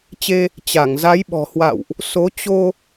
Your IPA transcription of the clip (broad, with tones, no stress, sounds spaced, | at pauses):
t͡ɕ e˧ | t͡ɕ a˧˩ ŋ z a˨˦ j ɓ ɔ̤˨˩ h w a̰˧˨ w ʔ | s o˨˦ t͡ɕ o˧